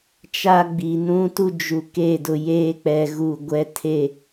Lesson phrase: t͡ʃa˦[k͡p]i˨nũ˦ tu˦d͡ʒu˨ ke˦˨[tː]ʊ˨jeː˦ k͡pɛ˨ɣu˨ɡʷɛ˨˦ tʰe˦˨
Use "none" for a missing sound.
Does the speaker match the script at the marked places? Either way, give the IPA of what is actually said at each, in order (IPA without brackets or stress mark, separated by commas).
ɡ͡b, d